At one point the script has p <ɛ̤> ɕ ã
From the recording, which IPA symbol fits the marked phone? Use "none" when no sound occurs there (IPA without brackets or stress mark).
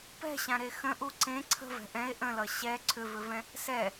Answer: ɛ̤